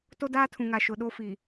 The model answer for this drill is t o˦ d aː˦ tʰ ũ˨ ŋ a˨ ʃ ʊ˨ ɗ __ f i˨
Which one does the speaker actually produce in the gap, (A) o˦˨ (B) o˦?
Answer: B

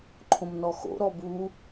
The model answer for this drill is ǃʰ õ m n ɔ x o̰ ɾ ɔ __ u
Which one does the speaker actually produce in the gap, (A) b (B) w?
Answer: A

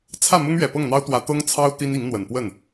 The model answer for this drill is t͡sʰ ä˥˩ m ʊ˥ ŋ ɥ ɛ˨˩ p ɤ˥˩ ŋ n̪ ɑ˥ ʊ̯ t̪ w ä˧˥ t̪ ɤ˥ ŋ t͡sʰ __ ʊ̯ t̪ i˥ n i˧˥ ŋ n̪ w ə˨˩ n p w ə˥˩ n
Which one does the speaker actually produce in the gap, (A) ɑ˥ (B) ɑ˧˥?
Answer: A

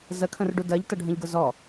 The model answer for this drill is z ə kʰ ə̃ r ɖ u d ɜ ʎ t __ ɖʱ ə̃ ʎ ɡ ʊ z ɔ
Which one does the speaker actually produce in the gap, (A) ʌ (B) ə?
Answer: A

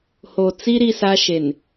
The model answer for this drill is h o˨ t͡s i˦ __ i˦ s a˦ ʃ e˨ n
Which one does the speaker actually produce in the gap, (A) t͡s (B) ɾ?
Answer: B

